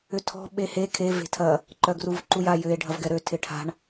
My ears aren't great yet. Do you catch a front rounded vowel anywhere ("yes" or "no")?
yes